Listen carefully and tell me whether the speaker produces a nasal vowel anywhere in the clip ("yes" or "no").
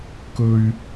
no